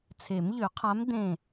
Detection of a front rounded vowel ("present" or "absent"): present